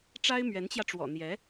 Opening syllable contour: high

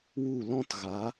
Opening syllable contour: falling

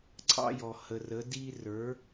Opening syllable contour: high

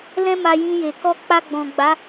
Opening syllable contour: high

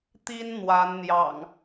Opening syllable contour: high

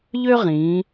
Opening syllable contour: high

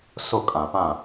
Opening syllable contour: falling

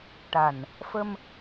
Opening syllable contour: low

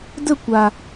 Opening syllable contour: falling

